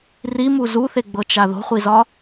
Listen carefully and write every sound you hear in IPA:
r i m u z u θ e ɡ͡b ɤ t͡ʃ a ð o̤ χʷ i z ɒ

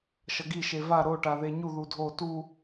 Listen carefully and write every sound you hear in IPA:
ʃ ʌ ɡ i ʃ e v a ɾ o ʈ a ð e ɲ u ð u dʱ o t u

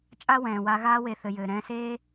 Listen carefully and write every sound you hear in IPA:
t͡ʃʼ a˦ w ɛ̃ː˨ w a˧ ɣ aː˧ w e˨ θ ɘ˨ j ɘː˨ ɾ ɛ̃ː˧ s eː˦

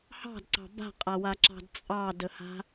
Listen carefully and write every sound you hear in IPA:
h ɑ̤ d ǀ ɑ̤ b a̤ qʼ a w a ǁ ɑ̤ d t͡sʼ ɑ d ə h a̤

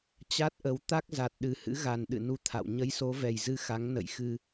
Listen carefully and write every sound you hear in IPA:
t͡ɕ a˦˥ t̚ ʔ ə˨˦ w t̪ a˦˥ k̚ z a˨˩ t̚ ɗ ɨ˨˩ h ɨ̰˧˥ ɣ a˨˩ n ɗ ɨ̰˧˨ n u˧ t̪ʰ a̰˧˨ w ɲ ə˨˦ j s o˨˦ v ɛ˨˩ j z ɨ˧ x a˨˦ ŋ n ə̰˧˨ j x ɨ˧

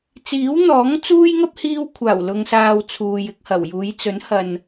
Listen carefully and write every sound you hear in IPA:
t͡s iː˨˥ w n̪ ɔː˨˥ ŋ t͡s uː˥ j ŋ ɐ˥ p̚ h iː˧ w kʷʰ aː˨˩ w l ʊ˨ ŋ s aː˨ w t͡sʰ uː˨ j ɪ˧ k̚ h ɐ˨˩ w j uː˨˧ j t͡s ɵ˨˥ n h ɐ˨ n

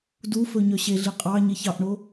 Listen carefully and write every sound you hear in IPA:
d u f ɵ ɲ œ ɕ e ɮ i qʼ ɑ ɲ e ç ɑ ʔ ɳ o

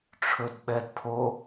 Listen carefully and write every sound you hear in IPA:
ʈ͡ʂʰ ɵ d ɓ ɛ d pʰ o

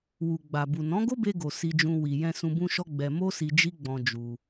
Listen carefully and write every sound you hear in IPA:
w u˨ ɡ͡b a˨ b u˨ n ɔ̃˨˦ ɡ o˦ b e˧ ɡ o˨ s i˧ d͡ʒ ũ˧ w i˨ j ɛ̃˧ s ũ˧ b ũ˦ ʃ ɔ˦ ɡ͡b ɛ˧ m o˦ s i˧ d͡ʒ i˦ ɡ͡b ɔ̃˧ d͡ʒ u˧

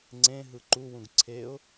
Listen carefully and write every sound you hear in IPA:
ŋ͡ǀ ẽ ɦ ɯ ǃ u w ũ ɡ ǀʰ e ʊ̯

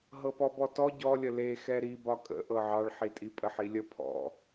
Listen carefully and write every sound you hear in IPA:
ɦ ɤ p ɔ b ɔ t ɔ ɟ ɔ lʲ ə l e x ɛ ɾ i b ɒ kʼ ə̰ ʔ ɤ ʕ ɑ ɭ ħ i tʼ i pʼ ə ħ i lʲ ə pʰ ɔ̰

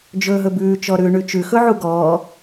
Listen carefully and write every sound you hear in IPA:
d͡ʒ ɵː ɦ ɵ b ʉː t͡ʃ ɔ ɾ ʉː ɳ ʉ t͡ʃ ʉ x ɵ ʕ u ɡ ɔː

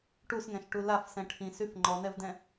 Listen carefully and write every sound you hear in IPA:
ʈ u s ŋ ɛ̃ ʃ ʈ u l a f s ɛ̃ ʈʰ ĩ s y f ŋ͡ǃ ɔ n̪ ɛ v d ɛ̃

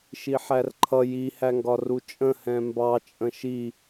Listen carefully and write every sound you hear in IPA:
ʃ i ħ æ r ǃʰ ʌ j i h æ ŋ ɡ ɒ r u t͡ʃʼ ə̃ h ɛ̃ m b ɑ t͡ʃʼ ə̃ ʃ i

